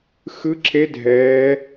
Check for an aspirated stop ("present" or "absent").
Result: absent